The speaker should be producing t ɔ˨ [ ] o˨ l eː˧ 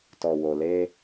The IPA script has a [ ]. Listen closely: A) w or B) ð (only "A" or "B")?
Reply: A